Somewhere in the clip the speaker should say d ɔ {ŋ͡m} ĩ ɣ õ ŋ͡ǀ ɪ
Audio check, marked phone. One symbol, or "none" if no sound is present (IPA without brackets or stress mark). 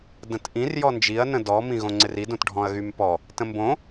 m